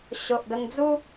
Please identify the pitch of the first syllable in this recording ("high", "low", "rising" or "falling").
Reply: low